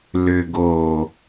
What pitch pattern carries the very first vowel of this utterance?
low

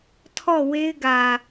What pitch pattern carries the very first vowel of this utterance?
falling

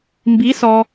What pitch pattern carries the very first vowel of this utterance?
rising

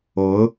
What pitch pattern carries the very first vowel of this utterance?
rising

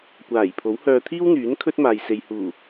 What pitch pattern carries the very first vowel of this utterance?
low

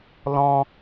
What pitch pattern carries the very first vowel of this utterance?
high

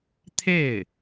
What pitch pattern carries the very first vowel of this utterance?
falling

